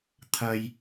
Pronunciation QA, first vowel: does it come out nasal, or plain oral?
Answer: oral